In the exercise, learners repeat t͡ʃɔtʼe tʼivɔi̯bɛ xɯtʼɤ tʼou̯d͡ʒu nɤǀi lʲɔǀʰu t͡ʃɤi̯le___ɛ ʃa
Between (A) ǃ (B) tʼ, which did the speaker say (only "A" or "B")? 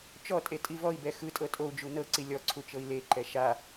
A